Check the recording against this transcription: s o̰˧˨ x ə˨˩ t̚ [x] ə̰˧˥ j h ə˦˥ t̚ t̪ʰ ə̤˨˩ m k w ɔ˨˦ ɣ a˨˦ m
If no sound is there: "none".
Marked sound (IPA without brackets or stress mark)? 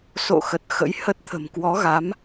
x